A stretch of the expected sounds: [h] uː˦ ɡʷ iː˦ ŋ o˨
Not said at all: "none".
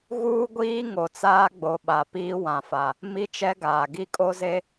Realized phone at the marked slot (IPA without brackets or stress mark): ɣ